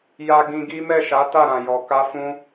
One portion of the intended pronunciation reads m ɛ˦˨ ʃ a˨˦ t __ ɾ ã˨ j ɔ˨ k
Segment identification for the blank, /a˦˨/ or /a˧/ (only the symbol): a˦˨